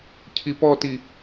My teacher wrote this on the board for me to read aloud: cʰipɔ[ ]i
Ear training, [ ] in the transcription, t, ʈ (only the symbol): t